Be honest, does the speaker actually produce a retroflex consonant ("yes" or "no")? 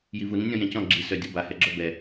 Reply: no